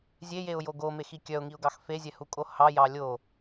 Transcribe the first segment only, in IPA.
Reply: zʲ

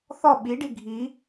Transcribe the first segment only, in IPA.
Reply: θ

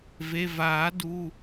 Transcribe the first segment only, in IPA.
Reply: v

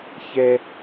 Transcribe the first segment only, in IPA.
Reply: ç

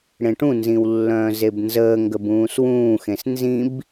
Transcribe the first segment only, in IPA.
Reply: ɽ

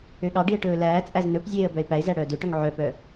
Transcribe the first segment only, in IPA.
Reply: ø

